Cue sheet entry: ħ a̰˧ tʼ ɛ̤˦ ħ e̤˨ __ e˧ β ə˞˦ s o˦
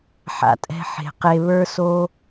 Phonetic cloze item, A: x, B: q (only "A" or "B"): B